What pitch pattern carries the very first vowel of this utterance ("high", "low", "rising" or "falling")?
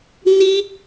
high